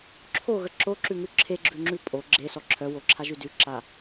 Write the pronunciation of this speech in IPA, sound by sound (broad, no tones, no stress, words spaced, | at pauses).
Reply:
ǁʰoɣə ǁoǁʉŋʉ ǁʰeɡ͡ǁʉŋ͡ǁʉ pʼo ɡ͡ǁesɔ ǁʰœwoǁʰaʒʉ dʉǁa